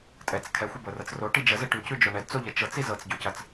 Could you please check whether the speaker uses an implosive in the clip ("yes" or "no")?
no